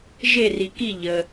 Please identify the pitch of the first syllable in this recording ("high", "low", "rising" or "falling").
falling